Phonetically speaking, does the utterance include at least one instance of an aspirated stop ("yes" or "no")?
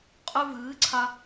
yes